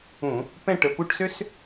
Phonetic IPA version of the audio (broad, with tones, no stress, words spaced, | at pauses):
ũ˧˩˧ | pɛ̃˦˨ʈə˩˧˩pu˦˨ʈsø˦s